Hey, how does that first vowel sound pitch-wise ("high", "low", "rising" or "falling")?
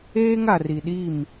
high